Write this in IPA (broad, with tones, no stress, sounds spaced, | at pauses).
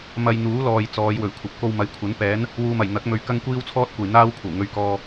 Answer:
m ɐ˧ j n̪ uː˨˥ l ɔː˨ j t͡s ɔː˨˧ j w ɵ˨˩ ɥ kʷʰ ɐ˨˥ p̚ k o˧ w m ɐ˨˥ j kʷʰ ɐ˨˥ n p ɛː˨˥ n | w uː˨ m ɐ˨˩ j n̪ ɐ˨˥ k̚ m ɵ˨ ɥ k ɐ˥ ŋ kʷ iː˥ w t͡sʰ ɔː˥ t̚ kʷ ɐ˨ j n̪ aː˥ w kʷʰ ɐ˨˩ w ŋ ɵ˧ ɥ k ɔː˧